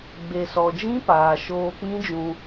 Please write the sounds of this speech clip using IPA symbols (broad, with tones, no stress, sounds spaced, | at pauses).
ɡ͡b e˨ s ɔ˨ d͡ʒ ĩ˦ p aː˨ ʃ oː˧ k͡p ĩ˦ d͡ʒ ũ˧